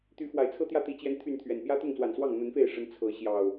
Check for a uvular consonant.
absent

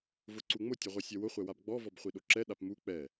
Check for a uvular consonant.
present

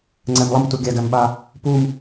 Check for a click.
present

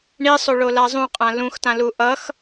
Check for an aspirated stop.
absent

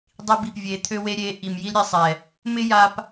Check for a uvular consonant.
absent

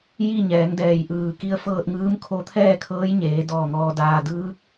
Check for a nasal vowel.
absent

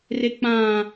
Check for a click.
absent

